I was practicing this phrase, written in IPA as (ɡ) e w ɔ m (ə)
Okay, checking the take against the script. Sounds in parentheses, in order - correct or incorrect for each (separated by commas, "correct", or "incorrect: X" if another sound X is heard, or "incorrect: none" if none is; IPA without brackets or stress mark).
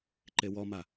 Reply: incorrect: ǃ, incorrect: a